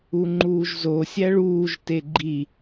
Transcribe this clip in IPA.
u ŋ͡ǃ uː ʒ z o sʲ æ ɭ uː ʒ t e ɡ͡ǃ i

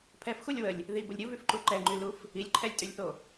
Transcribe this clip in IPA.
pʰ ɛ f x u lʲ w ə lʲ | ð i b ə lʲ ɾʲ u v y f ǃ u ǃ ɛ ŋ͡ǃ y l u f | i lʲ ǃʰ ɛ lʲ tʼ y lʲ θ o

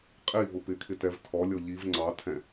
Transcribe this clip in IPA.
qʼ i v ʊ p ɪ kʰ ɪ t ɛ v tʰ ɔ lʲ ɔ ʎ i v ŋ͡ǀ ɑ tʰ ɛ̃

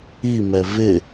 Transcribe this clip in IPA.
i m ɛ v ɪ

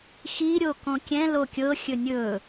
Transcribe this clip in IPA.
x i ɾʲ o k õ kʲ ɛ̃ l o kʲ ɤ xʲ ɵ nʲ ɵ

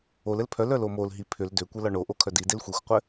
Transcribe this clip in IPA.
o l ɘ l pʰ œ l œ l o m o l ɦ i pʰ ʏ l d ʏ kʷ ɘ l ɒ ɳ o ʔ o kʰ œ d i d e l xʷ i xʷ qʷ ɘ

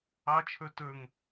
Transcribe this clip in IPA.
ɑ t͡ʃʰ ə˞ t ə˞ ŋ

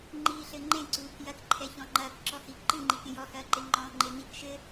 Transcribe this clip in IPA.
ŋ͡ǃ iː ɬ ɘ ŋ͡ǃ ẽ ǀ uː k j ɐ k ǃʰ ɛ ç ɔ̃ ŋ͡ǃ ɐː k ǁ ɔ h i ǃ ɨ ŋ͡ǃ i k ẽ j ɔ h ɐː ǃ e ŋ͡ǃ ɔ̃ː ŋ͡ǃ e n̪ i k ʃ ɘ

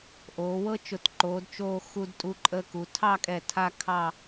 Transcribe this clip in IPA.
ʔ oː˩˧ w ɤ˥ t͡ʃ ʊ˧˩ t ǃ oː˩˧ d t͡ʃ oː˧ x u˧ d tʼ u˧ ǃʼ əː˧ k u˩˧ tʰ ɑ˥˧ kʼ ɛ˧˩ tʰ a˥˧ kʰ ɑ˥˧

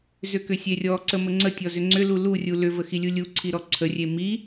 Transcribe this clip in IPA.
z ʏ k ʏ sʲ e rʲ ɔ ǀ ə m ə ŋ͡ǀ ə tʲ ɔ z ʏ ŋ͡ǀ ʏ l u l u rʲ u l ʏ v ə x i lʲ u lʲ u ǀʰ i ɾ ɔ ǀʰ ə rʲ e m i

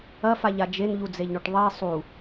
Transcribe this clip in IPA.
ɐ f a ʎ a d͡ʒ e n ʎ u d͡z e ʎ ɳ o ʈ ðˤ i sˤ u

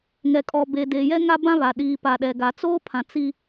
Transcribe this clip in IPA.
ŋ ɛ˨ kʼ ɔ˨ b e˨ d eː˨ j ɛ˦ ŋ a˦ b ã˦ β a˨ ɗ iː˨ p a˨ ɗ ɛ˨ ɡ a˨ t͡s oː˦ pʰ ã˨ t͡s i˦

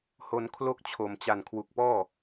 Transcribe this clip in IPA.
h o˧ n kʰ l o˥˩ k̚ t͡ɕʰ o˨˩ m t͡ɕ a˨˩ n kʰ w u˨˩ k̚ p ɔː˥˩

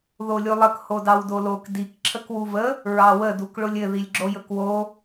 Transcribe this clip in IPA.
ð o lʲ u lˠ ə k h o d ɑ w d o l o k d i k ǁʰ ə k w u v ə | ɹ ɑ w ə d u k ɭ ʊ lʲ ɘ ð i lʲ ɡ͡ǁ o j ɵ k w o

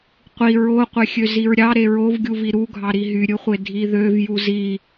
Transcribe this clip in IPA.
qʷ i ɹ o qʷ e xʲ ø z i ɹ ɾʲ ɑ ɾ e ɹ o v ɡʲ u v i ɾ u ɡʱ ɑ ɾ i ɦ y ɾʲ ɯ χʷ e dʱ i ð ø v j u z i

